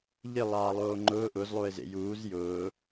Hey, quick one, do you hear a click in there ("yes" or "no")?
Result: yes